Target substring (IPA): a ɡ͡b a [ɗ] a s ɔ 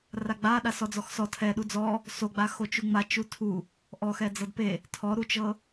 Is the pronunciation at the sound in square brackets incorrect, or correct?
correct